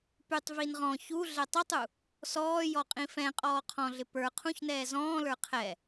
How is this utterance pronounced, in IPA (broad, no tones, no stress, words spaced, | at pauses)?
pytˤ vinʁɔ̃ çu ɮɛtˤʊtˤu | sɔːjɔ qʼĩfɛ̃ qʼɔːqʰɔ̃ɮɪ pə˞ qʰũçnɛː zɔ̃ːlə˞ qʰɛ